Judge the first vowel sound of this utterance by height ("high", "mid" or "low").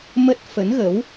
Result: mid